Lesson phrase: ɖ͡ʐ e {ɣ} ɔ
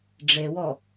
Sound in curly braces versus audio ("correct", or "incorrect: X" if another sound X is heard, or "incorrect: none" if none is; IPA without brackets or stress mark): incorrect: w